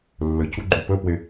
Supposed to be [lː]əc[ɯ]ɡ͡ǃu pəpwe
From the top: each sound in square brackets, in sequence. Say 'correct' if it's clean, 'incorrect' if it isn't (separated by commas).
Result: correct, incorrect